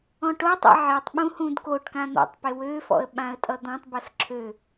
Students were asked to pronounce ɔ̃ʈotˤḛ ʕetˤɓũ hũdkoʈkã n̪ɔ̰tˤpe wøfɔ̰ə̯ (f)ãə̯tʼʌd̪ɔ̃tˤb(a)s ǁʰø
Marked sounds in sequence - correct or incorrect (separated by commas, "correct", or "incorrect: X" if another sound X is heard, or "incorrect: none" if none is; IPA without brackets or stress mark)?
incorrect: ɓ, incorrect: ʌ